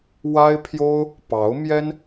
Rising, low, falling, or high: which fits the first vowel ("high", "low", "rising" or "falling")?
high